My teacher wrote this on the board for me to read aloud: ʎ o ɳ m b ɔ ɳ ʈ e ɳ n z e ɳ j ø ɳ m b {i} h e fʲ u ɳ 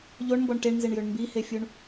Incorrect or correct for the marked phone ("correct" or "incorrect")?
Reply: correct